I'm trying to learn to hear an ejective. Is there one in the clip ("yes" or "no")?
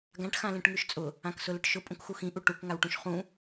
yes